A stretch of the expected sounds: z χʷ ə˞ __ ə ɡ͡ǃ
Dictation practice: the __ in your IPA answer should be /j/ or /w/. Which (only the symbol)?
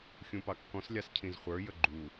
j